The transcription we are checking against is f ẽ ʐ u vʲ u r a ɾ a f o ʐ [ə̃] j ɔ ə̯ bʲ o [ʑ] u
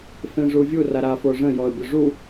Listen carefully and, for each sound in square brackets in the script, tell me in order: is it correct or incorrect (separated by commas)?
correct, incorrect